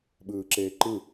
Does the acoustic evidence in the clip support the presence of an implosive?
yes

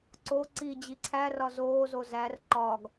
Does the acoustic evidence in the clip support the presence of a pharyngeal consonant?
no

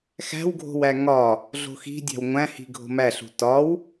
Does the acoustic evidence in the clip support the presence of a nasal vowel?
yes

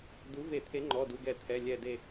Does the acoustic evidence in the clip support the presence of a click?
yes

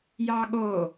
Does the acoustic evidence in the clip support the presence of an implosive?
yes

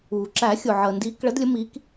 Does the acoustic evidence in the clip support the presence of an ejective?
no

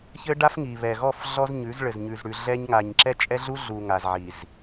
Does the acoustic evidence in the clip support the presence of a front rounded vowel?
no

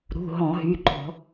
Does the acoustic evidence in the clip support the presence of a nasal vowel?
yes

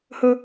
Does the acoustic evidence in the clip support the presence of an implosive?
no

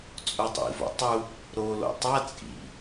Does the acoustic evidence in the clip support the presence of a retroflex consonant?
no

